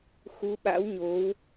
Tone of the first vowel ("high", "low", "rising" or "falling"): rising